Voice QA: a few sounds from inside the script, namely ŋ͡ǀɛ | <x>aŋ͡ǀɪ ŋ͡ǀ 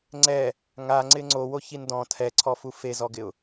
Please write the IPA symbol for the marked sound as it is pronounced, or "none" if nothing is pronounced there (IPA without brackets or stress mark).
ŋ